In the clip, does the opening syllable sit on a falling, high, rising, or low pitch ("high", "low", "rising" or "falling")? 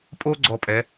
high